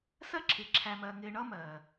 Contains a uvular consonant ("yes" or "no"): no